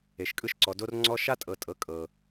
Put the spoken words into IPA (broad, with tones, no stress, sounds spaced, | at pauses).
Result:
e˨ ʃ kʼ ɯ˦ ʃ ǀ ɔ˨ d o˦ r ŋ͡ǀ ɔ˦ ʃ a˦ tʼ ɤ˨ tʼ ɤ˨ kʼ ɤ˨